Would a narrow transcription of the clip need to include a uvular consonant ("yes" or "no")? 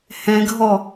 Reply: no